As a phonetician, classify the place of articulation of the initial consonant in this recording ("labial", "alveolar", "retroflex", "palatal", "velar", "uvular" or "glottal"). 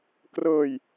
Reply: velar